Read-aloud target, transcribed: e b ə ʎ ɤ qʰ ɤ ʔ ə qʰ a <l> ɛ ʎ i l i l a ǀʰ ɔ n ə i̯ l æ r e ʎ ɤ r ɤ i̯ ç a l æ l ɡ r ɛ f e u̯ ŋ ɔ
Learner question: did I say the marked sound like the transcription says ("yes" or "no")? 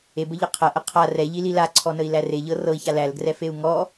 no